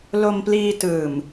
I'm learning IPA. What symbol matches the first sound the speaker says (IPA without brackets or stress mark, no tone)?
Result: l